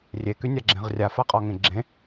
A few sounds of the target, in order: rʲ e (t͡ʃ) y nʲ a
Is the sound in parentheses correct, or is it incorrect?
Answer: incorrect